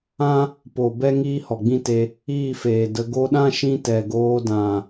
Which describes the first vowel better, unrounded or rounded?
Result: unrounded